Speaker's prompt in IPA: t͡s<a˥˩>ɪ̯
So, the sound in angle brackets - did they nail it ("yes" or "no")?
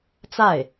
yes